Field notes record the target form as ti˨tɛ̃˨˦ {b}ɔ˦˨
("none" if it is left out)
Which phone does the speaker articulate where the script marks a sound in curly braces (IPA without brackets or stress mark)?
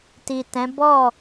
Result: b